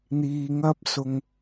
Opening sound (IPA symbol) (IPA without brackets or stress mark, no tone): n̪